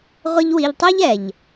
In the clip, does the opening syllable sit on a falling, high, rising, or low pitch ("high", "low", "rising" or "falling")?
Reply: high